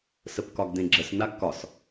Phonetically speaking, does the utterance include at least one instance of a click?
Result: yes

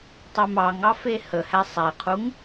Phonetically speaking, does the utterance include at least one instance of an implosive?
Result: no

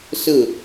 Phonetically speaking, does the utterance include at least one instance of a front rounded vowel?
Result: no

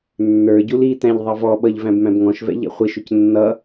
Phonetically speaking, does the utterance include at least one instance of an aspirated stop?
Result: no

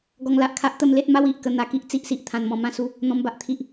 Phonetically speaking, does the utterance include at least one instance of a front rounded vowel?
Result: no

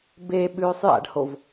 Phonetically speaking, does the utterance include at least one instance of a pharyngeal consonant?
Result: no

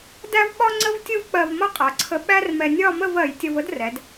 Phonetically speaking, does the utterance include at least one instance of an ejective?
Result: yes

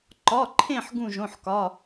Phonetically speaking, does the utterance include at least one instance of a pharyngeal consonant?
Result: yes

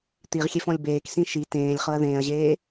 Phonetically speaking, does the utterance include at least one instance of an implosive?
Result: no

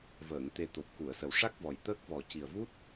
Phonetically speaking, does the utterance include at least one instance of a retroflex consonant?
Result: yes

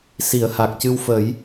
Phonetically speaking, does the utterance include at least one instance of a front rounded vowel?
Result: no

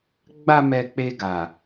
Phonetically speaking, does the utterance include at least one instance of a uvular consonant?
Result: no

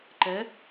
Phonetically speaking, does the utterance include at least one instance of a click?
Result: yes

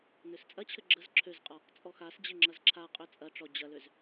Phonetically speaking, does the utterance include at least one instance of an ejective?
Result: yes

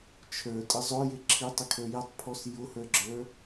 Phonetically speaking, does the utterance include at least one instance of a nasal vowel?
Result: no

